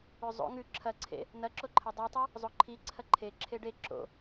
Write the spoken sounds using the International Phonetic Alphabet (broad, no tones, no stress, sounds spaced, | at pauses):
ʉ zˤ o̰ ŋ ʉ ǁʰ ɐ ǀʰ ḛ | n ɐ ǁ o ǃʰ e dˤ i tˤ i | zˤ o ǃʰ i ǀʰ ɐ ǃʰ e ǁʰ e ɖ e ǁ o̰